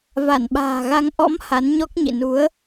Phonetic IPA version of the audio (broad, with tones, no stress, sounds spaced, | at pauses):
v a˧˩ n ɓ a̤ː˨˩ ɣ a˧ ŋ ʔ ɔ̰˧˥ m h a˨˦ n ɲ ɔ˦˥ k̚ ɲ ḭ˧˨ n u˨˦ ə̯